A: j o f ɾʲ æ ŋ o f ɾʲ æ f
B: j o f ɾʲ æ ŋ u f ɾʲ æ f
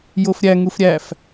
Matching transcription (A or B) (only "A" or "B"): B